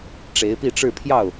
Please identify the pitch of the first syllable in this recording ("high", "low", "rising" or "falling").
rising